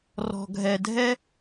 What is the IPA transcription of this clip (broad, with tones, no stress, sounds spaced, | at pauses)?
r ɔ̤˨ ɡʱ ɛ˨ dʱ ɛ˦